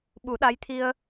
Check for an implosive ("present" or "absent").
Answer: present